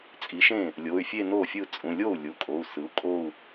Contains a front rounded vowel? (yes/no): yes